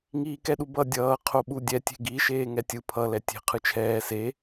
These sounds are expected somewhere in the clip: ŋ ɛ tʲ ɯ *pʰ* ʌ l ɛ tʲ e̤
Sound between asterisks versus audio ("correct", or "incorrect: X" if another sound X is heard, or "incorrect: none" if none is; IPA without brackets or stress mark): correct